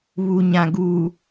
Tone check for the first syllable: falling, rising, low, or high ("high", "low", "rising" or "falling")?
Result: low